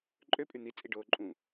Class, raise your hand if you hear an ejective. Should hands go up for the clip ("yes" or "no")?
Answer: yes